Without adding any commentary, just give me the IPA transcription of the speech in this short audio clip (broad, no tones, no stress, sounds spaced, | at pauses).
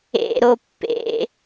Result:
ḛ ɾ o pː ḛ